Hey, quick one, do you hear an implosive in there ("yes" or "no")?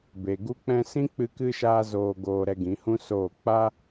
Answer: no